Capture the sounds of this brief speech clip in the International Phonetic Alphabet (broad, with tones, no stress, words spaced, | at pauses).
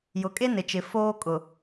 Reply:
jʊ˨kʼe˦nɪ˨t͡ʃɪ˨ foː˦kʼʊ˨